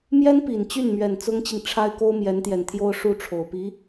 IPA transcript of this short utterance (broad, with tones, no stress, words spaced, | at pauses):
mjɛ˥npi˨˩nt͡ɕy˥˩n mɥɛ˨˩nt͡sʊ˥ŋt͡ɕi˨ŋ ʈ͡ʂʰa˥ɪ̯ko˥ʊ̯ mjɛ˧˥nt̪jɛ˨˩nt̪ʰjo˥ʊ̯ ʂu˥˩ʈ͡ʂʰo˨˩ʊ̯pi˧˥